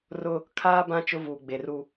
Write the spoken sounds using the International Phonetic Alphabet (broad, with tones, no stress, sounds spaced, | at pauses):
r ʊ˦ | kʰ aː˦ b ã˦ t͡ʃ ʊ˦ v uː˨ ɡ͡b e˨ r u˦